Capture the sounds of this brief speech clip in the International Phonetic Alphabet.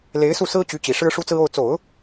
le˧˥ɪ̯su˥˩ sɹ̩˥t͡ɕy˧˥t͡ɕi˨˩ ʂɻ̩˥ʂu˥t͡sɹ̩˥ o˥˩ʊ̯ t͡so˨˩˦ʊ̯

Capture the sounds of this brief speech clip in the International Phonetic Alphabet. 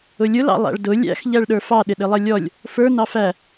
ʊlʲʊl ɑ̰lˠæ̰ɭdʊ lʲæ̰x ʎæɭɗə˞fɑ ɗɪɗɪlˠʌlʲɔlʲ | fə˞ nɑfæ

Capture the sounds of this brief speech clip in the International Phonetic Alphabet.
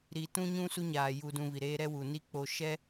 ɾi˨tũ˦ɲũ˦ su˦ɲaː˨ ju˨dũ˨ vi˨ɾeː˦ ɾɛ˦wu˨ni˦k͡poː˨ ʃɛ˦

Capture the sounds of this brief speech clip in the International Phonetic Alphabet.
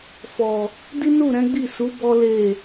fɔ˨ | di˦nu˦˨ɾɛ̃˨˦ɡ͡bi˦˨ su˨˦ bɔ˦le˦˨

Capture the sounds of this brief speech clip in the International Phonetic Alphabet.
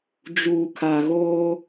d͡ʒuː˨kʰa˨ɣoː˦

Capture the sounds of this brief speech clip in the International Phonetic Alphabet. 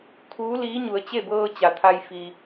kʰuː˧˥liː˧˥ ɲu˩˧ə̯t͡ɕe˥˨bɤː˧ t͡ɕa˩t̪ʰa˧j fi˩

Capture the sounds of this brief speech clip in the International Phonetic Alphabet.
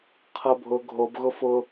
qʰɤbʱʊ ɡʱobɣʊ fʊ

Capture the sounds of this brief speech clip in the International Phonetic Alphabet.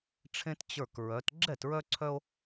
ʈ͡ʂʰẽ˦t t͡ɕə˞˧˩kɹœ˩˧t ɡ͡ǁɛ˥˩tɹœ˦ǀʰœ˦o̯

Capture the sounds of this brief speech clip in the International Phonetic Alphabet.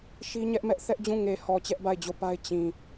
ʃi˦ɲɛ˦ʔmɛ˦ʔ θɛ˦ʔd͡ʑũ˦˨ ŋe˨hɔ˨ t͡ɕɛ˦ʔba˦˨ɪ̯d͡ʑo˦˨pa˦ɪ̯ t͡ɕĩ˨

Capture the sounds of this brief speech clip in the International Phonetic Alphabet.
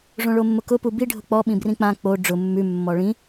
ʐõɭomːʊkʊ pubi ɖʱʊk͡pɔ ɓĩbrĩk͡pã k͡po ɖ͡ʐʊ mːʉ mːɔɭĩ

